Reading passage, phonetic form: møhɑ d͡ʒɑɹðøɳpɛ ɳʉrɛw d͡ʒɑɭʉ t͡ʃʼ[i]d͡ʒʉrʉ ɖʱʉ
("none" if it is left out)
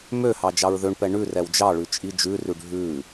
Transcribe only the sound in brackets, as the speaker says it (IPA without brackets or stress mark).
i